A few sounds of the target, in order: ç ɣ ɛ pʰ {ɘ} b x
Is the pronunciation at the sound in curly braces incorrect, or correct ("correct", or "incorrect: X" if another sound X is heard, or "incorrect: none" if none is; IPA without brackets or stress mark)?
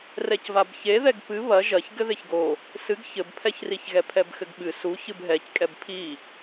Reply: incorrect: ɛ